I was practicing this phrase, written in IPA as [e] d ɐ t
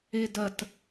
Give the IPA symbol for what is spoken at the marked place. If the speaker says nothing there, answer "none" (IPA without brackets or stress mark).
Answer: e